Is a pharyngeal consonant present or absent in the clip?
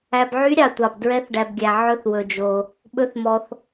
present